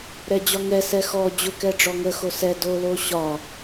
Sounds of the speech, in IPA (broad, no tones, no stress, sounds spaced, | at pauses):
ɾ ɛ d͡ʑ ɒ ŋ ɛ s ɛ x ɔ d͡ʑ ʊ k ɛ ɖ͡ʐ ɔ ŋ ə x o s ɛ d o l o ɕ ɒ